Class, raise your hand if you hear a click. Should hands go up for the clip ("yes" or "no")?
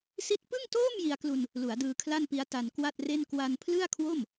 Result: no